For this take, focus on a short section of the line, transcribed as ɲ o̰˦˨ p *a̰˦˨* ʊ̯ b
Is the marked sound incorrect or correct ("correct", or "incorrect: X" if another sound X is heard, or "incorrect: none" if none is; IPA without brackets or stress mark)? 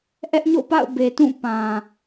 correct